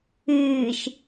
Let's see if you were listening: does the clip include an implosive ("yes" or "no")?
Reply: no